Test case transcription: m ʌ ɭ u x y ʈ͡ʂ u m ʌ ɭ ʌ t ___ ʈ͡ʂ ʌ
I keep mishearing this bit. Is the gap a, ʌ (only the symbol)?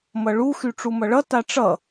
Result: a